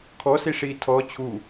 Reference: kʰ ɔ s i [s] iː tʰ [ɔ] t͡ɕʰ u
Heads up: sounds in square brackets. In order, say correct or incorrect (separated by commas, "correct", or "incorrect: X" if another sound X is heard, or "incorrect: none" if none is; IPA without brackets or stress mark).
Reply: incorrect: ʂ, correct